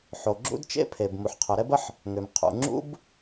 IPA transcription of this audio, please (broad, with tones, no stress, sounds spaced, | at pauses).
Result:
ħ o˩ ɡ͡ǁ ṵ˥ d t͡ʃ ḛ˥ pʰ e˩ b m u˩ ħ qʰ œ˩ ɾ ɛ˥ b ə˥ ħ | ŋ ø˩ m qʰ ṵ˩ ŋ͡ǁ ṵ˥ b